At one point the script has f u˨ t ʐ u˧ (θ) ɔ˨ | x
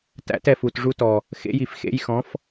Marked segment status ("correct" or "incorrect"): incorrect